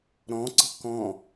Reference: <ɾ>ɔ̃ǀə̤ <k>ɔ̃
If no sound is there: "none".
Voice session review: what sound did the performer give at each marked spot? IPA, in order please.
ɾ, k

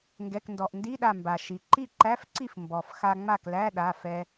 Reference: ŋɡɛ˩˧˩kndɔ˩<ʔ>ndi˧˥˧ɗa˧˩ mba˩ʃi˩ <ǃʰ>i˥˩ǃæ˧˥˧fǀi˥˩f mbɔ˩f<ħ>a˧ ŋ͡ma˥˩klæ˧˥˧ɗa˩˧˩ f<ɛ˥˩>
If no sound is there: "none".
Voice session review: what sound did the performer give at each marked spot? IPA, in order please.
ʔ, ǃ, x, ɛ˧

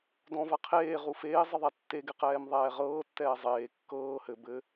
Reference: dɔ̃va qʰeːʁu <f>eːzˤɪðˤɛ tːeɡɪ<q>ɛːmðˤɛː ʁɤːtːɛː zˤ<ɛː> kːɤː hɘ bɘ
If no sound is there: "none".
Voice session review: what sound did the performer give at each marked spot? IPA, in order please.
f, q, eː

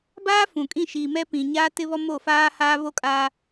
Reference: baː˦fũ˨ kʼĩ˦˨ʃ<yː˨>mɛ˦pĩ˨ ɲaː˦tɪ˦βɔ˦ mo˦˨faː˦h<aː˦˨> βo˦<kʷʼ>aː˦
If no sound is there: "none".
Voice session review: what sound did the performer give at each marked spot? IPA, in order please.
iː˨, aː˦, kʼ

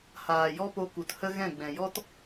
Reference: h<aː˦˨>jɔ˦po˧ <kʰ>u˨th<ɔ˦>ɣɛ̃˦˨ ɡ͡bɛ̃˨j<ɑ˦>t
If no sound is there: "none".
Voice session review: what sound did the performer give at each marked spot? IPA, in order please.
aː˨, k, ə˦, ɔ˦

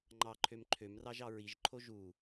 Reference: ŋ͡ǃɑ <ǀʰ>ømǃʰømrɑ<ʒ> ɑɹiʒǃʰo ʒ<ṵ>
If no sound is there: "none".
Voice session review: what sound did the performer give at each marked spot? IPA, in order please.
ǃʰ, ʒ, u

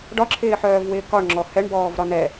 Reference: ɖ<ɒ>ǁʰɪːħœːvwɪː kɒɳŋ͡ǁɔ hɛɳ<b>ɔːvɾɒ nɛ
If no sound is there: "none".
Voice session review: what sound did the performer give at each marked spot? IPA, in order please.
ɒ, b

